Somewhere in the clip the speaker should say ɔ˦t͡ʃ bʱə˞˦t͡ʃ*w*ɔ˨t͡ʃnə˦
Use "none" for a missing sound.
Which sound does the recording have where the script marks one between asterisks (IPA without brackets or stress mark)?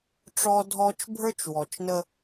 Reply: w